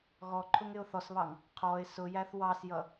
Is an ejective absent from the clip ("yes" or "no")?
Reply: yes